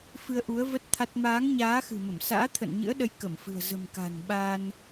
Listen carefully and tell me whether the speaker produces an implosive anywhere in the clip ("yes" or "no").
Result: yes